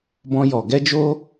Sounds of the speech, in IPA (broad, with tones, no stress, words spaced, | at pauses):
bɔ̃˧jɔ˨ ɡɛ˧d͡ʒo˧